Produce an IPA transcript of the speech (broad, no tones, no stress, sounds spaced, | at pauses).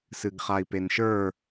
s ɨ ɡ χ a i̯ p e n ʃ ə˞